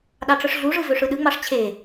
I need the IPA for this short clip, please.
ɗɑʈ͡ʂɯʂɮuʐɯ vøʂɯɗɯŋ͡mɑʂ t͡ɕʰe

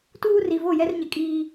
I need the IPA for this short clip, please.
tuː˦ri˨vo˦˨ jɛ˦rɲɪ˨kʼiː˦

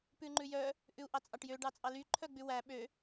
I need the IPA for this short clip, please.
pʉŋ͡ǃʉjœ | ʔʉu̯ʔɑt͡sʼɑʈjø ɖɑt͡sʼɑly ǃʰœɡ͡bʉwæ ɓø

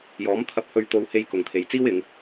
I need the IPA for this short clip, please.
jɔː˨˥m t̪ʰɐ˧p̚hɵ˧ɥt̪o˧whe˧j kʊ˨ŋt̪ʰe˨jt͡siː˥w ɪ˨˧ŋ

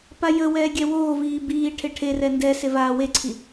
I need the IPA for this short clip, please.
pajəwɛː ɡʲɛwoːviː biː ʈʰeʈʰerɛ ndɛse vaːweǀʰi

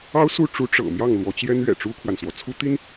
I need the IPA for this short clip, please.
ɑ˥ʊ̯su˥˩ ʈ͡ʂu˧˥ ʈ͡ʂɤ̰˨˩ mjɑ˥˩ŋlwɔ˧˥t͡ɕjɛ˥nɥɛ̰˨˩ ʈ͡ʂu˥kʰwa˨nswɔ˩ t͡sʰu˥t̪i˥n

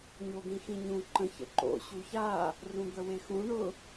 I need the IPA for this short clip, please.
ɲod̪ĩxĩɲũ ǃə̃ çə̰ǃo̰ ɕuça | rũd̪əwexũ ɳʊ

